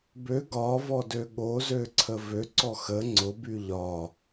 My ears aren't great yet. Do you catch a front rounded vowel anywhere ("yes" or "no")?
yes